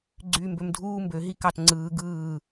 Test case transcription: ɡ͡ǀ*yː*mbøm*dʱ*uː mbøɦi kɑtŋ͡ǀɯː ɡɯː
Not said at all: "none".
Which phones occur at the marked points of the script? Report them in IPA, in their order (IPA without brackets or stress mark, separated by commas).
yː, dʱ